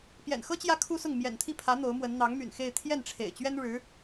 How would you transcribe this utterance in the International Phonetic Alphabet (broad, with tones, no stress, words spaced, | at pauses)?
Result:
pjɛ̰˨˩nxɤ˥ t͡ɕjä˥kʰu˥sʊ˥˩ŋ mjɛ̰˨˩nt̪ʰi˥˩ pʰä˧˥ n̪o˧˥ʊ̯mwə˧˥n n̪ɑ˧˥ŋmy̰˨˩n xe˥˧ɪ̯ t̪ʰjɛ˥˩nʈ͡ʂʰḛ˨˩ɪ̯ t͡ɕɥɛ˥nɻɻ̩˧˥